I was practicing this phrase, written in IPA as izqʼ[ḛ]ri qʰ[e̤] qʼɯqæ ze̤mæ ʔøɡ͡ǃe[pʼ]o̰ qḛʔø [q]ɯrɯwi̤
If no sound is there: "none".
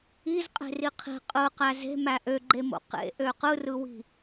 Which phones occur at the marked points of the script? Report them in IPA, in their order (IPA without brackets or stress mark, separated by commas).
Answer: e̤, i̤, m, q